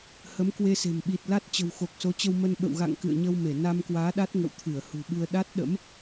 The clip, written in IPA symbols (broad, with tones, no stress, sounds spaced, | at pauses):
h ə˨˦ m k w e˧ s e̤˨˩ m ɓ i˨˩ t̚ l a˦˥ t̚ t͡ɕ ə̤˨˩ w x o˨˩ k̚ s o˨˦ t͡ɕ ə˧ w m ə˧ n ɓ ə̰˧˨ w ɣ a̰˧˨ ŋ k ɨ̰˧˨ ə̯ ɲ ə˧ w m e˧˩ n a˧ m k w aː˨˦ ɗ a˦˥ t̚ ŋ ə̰˧˨ w t̪ʰ ɨ˧˩ ə̯ h ṳ˨˩ ɓ ɨ˧ ə̯ ɗ a˦˥ t̚ ɗ ə̰˧˥ m